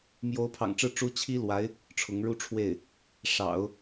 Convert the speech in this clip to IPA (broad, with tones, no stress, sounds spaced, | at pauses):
m j o˧˥ ʊ̯ pʰ ɑ̰˨˩ ŋ ʈ͡ʂ ɻ̩˥˩ ʈ͡ʂ u˥ t͡ɕʰ i˥ l w a˧˥ ɪ̯ | ʈ͡ʂʰ ʊ˧˥ ŋ ɻ u˥˧ ʈ͡ʂʰ w e˥˩ ɪ̯ | ʂ ɑ̰˨˩˦ ʊ̯